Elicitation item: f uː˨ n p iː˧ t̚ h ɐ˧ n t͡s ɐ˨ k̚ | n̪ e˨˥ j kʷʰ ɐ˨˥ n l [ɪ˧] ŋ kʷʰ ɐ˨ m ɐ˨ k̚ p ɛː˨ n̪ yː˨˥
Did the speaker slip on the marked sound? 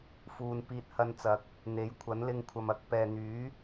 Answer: no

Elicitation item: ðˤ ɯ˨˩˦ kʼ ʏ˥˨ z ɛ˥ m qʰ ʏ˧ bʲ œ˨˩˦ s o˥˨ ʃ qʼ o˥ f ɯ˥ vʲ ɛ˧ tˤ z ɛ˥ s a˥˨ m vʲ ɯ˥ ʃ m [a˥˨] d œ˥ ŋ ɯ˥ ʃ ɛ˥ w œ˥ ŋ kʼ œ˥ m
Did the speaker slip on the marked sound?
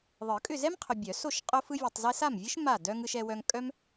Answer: no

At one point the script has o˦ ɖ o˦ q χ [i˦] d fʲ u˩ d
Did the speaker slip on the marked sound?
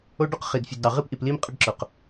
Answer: yes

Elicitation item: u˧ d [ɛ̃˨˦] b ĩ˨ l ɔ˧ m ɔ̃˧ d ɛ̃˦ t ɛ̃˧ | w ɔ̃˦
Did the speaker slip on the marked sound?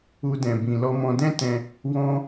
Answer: yes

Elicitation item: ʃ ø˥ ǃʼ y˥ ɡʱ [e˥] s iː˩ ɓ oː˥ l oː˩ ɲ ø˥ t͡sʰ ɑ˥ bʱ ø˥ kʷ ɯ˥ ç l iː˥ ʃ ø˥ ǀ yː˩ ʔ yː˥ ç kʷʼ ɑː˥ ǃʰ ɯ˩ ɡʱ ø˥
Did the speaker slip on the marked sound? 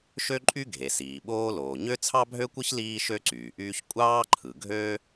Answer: yes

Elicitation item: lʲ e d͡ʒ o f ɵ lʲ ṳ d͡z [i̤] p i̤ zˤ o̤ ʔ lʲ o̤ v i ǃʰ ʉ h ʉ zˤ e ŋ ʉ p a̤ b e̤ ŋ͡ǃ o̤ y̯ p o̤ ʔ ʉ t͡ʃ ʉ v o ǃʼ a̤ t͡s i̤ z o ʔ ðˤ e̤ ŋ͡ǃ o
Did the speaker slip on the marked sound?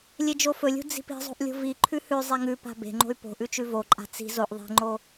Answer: no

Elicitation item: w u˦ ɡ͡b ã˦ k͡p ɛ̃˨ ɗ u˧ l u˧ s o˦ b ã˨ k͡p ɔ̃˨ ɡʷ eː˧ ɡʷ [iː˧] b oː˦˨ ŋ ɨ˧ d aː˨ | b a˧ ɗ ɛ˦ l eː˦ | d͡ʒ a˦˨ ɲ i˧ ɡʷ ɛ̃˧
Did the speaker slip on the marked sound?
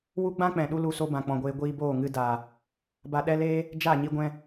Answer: no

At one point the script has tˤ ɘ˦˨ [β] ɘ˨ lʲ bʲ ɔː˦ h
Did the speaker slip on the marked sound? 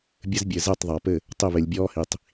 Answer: no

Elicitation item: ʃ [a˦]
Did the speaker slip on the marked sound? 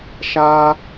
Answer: no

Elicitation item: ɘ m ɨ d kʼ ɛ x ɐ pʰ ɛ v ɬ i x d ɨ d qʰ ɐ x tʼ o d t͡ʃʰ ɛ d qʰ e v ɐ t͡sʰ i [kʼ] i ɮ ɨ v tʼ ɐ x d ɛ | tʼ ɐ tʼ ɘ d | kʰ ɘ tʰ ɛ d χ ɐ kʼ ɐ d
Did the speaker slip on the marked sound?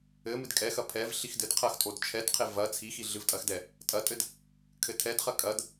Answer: yes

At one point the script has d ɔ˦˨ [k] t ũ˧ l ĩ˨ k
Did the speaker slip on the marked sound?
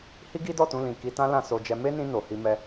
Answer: yes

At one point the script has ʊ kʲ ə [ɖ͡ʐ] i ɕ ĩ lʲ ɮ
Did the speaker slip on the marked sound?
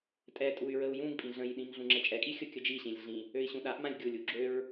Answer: yes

